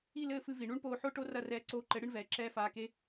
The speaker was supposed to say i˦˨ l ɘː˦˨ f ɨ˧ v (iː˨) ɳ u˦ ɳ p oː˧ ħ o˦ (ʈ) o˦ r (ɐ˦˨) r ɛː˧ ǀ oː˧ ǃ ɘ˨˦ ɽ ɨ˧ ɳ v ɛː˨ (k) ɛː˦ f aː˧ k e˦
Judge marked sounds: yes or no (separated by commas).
no, yes, yes, no